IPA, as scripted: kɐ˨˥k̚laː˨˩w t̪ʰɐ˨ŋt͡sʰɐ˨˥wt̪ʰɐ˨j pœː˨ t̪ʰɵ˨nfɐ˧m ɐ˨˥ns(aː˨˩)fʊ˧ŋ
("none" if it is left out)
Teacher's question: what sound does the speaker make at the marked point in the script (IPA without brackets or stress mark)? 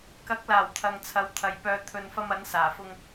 aː˨˩